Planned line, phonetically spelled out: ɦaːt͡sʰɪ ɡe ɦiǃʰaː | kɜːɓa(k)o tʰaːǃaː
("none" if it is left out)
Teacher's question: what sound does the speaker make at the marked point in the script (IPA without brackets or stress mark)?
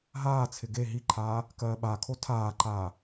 kʰ